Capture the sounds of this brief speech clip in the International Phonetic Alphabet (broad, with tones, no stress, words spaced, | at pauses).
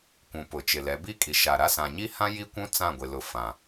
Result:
kʷũ˨ pʊ˨t͡ʃɪ˨lɛ˨˦ bi˦ kʼi˨ʃa˨ɾa˦ sã˨ɲi˦hã˦ ji˦kʷũ˦ t͡sã˦˨ɡʷɪ˨lʊ˨ fã˨